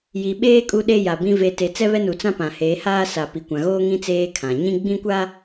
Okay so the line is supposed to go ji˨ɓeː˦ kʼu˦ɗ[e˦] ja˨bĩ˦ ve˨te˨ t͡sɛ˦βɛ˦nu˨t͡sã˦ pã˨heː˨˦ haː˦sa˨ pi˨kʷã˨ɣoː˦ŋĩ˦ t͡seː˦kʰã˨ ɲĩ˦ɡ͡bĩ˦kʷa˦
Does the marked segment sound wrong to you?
no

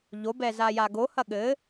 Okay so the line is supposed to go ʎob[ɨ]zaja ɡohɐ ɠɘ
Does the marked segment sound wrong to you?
yes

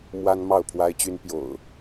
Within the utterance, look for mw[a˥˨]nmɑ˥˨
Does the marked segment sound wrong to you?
yes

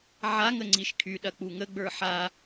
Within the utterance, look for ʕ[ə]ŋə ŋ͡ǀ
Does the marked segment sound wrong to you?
yes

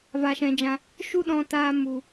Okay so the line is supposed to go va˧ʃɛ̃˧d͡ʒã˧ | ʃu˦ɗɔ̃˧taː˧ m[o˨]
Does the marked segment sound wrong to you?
yes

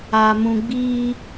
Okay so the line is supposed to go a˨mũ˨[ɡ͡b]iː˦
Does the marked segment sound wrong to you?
no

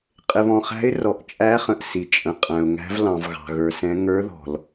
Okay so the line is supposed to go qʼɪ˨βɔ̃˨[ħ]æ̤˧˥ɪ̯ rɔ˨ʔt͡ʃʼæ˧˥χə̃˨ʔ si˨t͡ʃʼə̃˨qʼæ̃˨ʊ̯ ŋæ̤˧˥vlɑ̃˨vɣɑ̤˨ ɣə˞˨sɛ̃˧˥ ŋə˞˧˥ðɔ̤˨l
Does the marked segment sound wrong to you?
yes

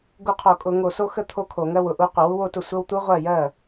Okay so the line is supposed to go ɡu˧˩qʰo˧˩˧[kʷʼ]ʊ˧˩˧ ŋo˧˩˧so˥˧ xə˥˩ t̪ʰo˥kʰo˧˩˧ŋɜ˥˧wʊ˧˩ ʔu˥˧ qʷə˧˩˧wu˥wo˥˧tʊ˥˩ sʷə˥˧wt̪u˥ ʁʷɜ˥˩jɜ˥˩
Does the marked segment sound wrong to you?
yes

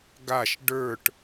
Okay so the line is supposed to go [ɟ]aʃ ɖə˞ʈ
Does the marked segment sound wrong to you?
yes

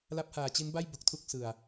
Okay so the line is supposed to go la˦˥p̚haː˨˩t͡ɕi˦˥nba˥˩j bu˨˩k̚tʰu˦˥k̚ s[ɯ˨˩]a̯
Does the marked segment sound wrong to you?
no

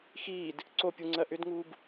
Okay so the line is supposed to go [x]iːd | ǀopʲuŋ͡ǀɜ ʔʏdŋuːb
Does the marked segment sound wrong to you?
no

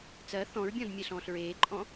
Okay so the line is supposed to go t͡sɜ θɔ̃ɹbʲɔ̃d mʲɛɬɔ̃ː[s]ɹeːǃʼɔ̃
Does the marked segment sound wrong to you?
yes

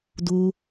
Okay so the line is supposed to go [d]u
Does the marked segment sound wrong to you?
no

